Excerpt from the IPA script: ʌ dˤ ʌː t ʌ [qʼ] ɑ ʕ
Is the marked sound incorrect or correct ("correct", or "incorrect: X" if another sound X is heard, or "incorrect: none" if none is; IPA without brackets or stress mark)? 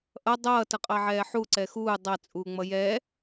correct